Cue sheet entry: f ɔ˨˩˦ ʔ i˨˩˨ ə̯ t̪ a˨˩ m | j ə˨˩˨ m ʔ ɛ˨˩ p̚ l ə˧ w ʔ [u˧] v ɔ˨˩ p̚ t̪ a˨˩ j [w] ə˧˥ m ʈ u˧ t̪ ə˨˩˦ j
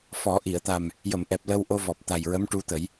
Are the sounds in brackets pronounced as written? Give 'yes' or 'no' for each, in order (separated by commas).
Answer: no, no